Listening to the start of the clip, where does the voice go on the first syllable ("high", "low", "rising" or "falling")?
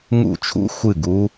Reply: falling